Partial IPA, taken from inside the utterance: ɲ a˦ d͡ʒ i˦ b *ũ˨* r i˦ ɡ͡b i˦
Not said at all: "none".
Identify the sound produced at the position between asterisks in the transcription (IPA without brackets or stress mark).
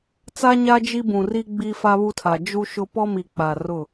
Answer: ũ˨